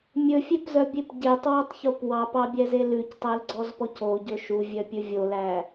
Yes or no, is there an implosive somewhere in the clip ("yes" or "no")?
no